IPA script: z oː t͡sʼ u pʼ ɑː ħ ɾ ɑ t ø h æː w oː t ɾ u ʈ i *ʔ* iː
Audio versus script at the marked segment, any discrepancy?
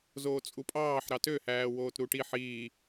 yes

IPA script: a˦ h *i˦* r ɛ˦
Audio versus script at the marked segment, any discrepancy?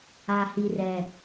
no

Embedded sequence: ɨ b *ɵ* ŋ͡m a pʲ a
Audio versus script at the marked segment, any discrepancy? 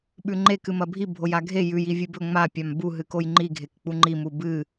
no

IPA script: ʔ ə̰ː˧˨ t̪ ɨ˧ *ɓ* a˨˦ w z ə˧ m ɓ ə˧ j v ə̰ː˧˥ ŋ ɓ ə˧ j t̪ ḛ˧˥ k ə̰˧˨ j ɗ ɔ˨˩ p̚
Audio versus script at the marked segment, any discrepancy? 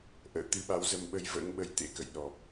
no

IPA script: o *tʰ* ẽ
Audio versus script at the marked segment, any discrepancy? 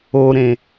yes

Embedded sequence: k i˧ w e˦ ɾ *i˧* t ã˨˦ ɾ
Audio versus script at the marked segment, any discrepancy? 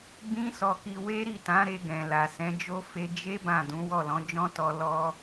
yes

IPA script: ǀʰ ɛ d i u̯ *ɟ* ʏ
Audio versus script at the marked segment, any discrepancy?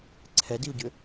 no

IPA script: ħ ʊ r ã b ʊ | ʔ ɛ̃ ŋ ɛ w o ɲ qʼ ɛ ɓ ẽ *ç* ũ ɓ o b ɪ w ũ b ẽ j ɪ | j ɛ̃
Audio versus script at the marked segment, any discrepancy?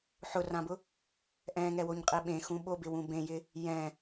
yes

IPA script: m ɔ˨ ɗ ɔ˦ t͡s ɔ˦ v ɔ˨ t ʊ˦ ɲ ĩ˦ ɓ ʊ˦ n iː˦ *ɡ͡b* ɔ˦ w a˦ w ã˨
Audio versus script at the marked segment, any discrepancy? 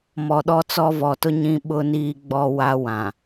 no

